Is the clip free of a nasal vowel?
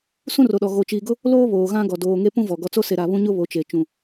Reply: no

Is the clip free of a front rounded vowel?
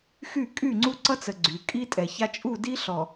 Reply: no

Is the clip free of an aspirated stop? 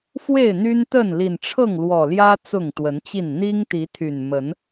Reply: no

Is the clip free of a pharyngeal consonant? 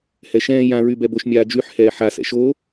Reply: no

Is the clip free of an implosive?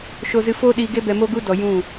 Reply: no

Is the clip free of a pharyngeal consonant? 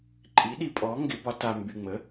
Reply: yes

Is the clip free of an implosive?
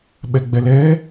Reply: no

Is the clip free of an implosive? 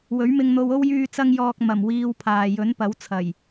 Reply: yes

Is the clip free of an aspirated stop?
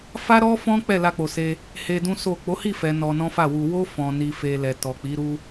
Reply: yes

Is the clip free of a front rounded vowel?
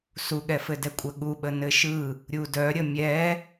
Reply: no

